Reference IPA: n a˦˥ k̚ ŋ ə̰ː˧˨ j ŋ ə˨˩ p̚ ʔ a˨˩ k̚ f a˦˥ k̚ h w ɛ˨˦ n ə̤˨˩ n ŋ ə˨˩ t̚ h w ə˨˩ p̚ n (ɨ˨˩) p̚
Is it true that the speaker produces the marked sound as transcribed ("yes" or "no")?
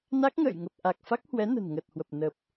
no